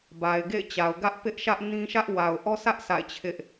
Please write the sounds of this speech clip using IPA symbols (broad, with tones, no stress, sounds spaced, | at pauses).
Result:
b a˨ ɪ̯ ɡ ḛ˦˨ ɪ̯ t͡ɕ a˨ ʊ̯ ɡ ä˦ ʔ p ɪ˦ ʔ ʃ ä˦ ʔ n ĩ˦ ʃ ä˦ ʔ w a˨ ʊ̯ ʔ ɔ˦ sʰ ä˦ ʔ sʰ a̰˦˨ ɪ̯ t͡ɕʰ ɪ˦ ʔ